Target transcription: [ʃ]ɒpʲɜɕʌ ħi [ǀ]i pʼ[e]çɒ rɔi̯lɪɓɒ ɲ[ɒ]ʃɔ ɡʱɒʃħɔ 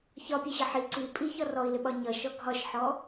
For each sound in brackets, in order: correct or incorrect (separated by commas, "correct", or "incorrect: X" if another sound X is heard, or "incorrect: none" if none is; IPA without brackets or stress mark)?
incorrect: ç, correct, incorrect: i, incorrect: ʌ